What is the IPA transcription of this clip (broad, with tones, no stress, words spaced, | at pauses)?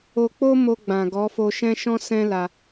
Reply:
o˧k͡po˦mo˧ ɡ͡bã˨ɡɔ˨˦fo˧ ʃɛ̃˧ ʃɔ̃˦sɛ̃˦la˧